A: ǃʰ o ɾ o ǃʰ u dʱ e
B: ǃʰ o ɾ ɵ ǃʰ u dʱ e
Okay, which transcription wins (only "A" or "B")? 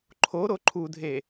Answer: A